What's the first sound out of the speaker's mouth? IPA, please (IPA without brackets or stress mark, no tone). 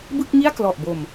b